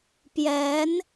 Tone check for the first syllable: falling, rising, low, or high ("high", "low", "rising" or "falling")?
rising